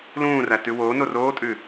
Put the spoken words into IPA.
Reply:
l ũː r æ t ʉ w oː n o r oː tʼ ʉ

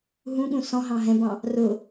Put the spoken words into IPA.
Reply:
ɦ ũ ɠ ũ s ɔ̃ ɦ ɑ̃ ɦ ɛ̃ b ɑ̃ | r ʊ

